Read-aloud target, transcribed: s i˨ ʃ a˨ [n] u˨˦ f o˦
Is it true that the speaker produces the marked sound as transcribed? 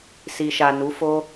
yes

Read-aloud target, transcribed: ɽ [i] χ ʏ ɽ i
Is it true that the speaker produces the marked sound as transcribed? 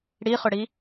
yes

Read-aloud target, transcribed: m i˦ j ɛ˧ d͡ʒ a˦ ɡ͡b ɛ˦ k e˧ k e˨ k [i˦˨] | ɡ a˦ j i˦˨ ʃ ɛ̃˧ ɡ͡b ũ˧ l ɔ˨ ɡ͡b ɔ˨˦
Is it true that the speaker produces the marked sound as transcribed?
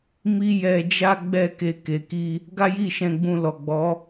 no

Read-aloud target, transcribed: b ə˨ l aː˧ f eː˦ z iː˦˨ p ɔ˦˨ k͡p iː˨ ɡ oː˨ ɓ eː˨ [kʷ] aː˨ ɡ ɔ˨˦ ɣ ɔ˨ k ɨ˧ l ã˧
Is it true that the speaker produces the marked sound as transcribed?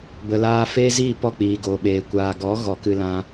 yes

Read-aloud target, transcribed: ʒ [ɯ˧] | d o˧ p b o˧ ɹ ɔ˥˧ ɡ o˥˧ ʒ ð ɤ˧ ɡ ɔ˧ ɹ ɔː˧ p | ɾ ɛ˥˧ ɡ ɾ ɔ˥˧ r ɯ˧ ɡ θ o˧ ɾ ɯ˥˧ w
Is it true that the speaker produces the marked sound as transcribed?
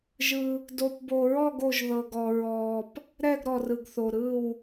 yes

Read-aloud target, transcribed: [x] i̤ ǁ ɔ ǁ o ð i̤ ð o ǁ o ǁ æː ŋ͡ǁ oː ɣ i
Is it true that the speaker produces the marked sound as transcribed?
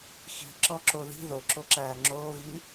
yes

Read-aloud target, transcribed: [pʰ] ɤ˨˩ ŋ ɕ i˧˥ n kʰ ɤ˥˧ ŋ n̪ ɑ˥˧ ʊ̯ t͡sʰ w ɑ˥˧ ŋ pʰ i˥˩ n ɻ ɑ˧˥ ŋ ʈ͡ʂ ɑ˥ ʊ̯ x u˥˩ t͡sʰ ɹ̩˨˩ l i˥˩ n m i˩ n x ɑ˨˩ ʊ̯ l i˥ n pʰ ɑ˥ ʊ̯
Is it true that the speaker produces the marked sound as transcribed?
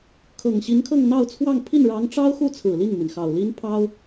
no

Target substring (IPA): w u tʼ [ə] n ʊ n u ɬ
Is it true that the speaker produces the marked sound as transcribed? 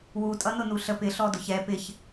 no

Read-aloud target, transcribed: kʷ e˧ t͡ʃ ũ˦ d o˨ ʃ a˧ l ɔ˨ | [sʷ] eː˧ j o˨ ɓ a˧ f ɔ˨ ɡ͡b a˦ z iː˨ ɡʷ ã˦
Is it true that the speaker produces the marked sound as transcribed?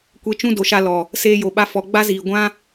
no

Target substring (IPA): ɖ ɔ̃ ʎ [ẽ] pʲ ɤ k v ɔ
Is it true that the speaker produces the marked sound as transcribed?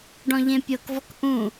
yes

